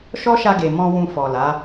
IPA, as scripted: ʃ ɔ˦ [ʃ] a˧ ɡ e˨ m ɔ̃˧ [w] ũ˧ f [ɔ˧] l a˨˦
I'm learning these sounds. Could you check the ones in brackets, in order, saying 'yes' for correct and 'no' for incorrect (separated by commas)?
yes, yes, no